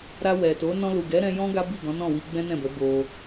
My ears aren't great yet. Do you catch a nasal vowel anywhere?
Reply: yes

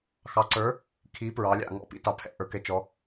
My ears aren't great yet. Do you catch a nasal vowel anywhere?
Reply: no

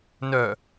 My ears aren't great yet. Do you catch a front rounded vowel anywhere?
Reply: yes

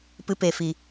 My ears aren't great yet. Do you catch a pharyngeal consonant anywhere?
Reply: no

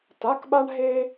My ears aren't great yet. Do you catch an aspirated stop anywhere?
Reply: no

